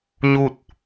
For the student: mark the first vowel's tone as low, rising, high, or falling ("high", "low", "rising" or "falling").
falling